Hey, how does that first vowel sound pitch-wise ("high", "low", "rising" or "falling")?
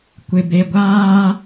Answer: low